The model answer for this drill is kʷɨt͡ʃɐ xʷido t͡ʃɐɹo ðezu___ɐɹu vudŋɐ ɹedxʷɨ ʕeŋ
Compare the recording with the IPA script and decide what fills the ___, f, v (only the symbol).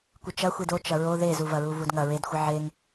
v